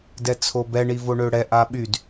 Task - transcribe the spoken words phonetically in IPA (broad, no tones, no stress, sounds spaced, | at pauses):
d ɛ t͡sʰ o b ɛ ɳ i v o ɳ ø ɽ ɛ ʔ a ɓ y d